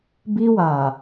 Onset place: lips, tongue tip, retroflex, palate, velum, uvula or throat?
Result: lips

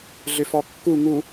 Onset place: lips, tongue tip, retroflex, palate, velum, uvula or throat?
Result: tongue tip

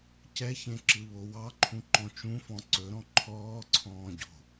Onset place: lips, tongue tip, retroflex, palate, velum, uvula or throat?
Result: palate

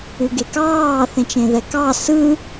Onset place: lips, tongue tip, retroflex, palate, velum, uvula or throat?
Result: velum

